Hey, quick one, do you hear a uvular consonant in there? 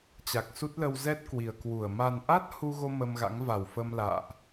no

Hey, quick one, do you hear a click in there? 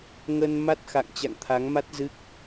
no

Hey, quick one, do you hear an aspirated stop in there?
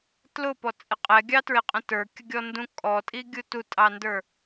no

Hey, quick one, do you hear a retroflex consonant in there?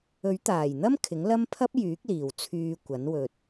no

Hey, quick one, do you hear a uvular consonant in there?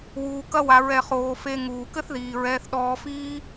yes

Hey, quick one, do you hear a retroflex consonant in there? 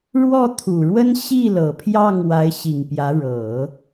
yes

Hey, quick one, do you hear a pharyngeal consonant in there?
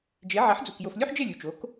yes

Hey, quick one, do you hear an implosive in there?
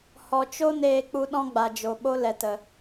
yes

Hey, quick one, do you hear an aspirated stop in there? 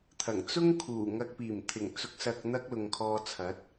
yes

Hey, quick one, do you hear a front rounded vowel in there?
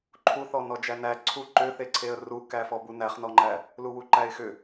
yes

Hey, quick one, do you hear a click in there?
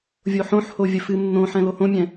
no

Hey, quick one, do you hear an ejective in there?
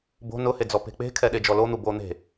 no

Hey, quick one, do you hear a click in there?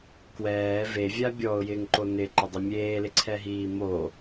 yes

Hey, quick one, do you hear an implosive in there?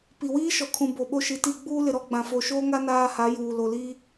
yes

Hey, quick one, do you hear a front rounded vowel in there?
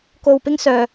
yes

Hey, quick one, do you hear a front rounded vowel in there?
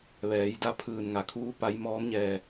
no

